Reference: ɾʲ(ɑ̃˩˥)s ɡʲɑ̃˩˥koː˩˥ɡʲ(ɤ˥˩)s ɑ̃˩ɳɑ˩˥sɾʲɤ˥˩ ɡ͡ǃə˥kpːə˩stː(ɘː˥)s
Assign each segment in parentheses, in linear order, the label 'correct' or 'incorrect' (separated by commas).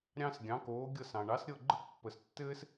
incorrect, correct, correct